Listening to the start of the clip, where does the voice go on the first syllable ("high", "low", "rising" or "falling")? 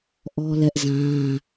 high